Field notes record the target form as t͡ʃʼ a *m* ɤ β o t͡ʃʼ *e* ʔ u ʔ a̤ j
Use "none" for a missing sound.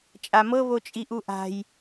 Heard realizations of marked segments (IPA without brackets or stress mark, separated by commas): m, i